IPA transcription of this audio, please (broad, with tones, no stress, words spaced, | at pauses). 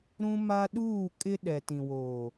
ɾũ˦ma˦ɗuː˦˨ kʼɪ˦ ɗɛ˨tĩ˨woː˨